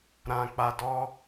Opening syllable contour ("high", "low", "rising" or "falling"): low